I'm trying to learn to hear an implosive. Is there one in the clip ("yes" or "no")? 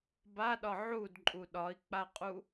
yes